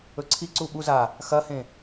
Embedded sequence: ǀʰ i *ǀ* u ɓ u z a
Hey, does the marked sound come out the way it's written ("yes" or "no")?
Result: yes